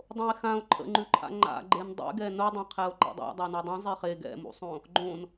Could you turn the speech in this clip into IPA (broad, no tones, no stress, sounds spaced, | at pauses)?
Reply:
dˤ õ e̯ x ã o̯ ǃʰ ə̰ ŋ͡ǃ ʉ ǃʰ a̰ ŋ͡ǃ a̰ ɡ͡ǃ e n dˤ ḛ ɡ ɛ n o dˤ ã qʰ ɛ o̯ ǃ ḛ dˤ a̰ dˤ a n u dˤ ũ zˤ e χ e ɡ ɛ̰ m ṵ sˤ õ | ɡ͡ǃ õ n